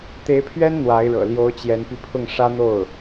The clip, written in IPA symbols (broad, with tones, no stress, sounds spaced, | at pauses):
t̪ e˧˥ ɪ̯ pʰ ɥ ɛ˥ n n̪ w a˧˥ ɪ̯ ɻ ɤ̰˨˩ l j o˧˥ ʊ̯ t͡ɕ j ɛ˧˥ n p i˧ pʰ ʊ˥˩ ŋ ʂ ä˥ n̪ o˥˩ ʊ̯